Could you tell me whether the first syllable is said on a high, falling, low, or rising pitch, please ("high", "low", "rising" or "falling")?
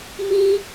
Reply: high